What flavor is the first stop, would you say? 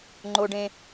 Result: click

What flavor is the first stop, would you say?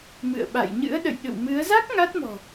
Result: implosive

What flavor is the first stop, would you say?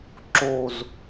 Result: click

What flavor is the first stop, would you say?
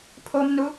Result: aspirated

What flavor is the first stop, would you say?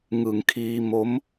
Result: aspirated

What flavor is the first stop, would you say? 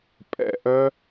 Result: ejective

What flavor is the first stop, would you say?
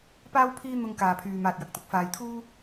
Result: plain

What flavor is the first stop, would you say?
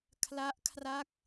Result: aspirated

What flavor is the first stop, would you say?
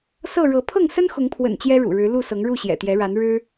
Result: aspirated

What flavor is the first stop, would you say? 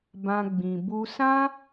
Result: plain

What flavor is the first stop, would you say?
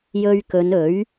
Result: plain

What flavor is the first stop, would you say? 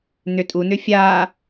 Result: ejective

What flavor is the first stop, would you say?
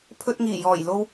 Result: aspirated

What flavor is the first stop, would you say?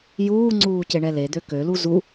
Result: click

